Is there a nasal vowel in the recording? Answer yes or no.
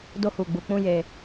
yes